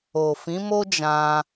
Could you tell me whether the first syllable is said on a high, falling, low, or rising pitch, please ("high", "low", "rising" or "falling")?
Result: low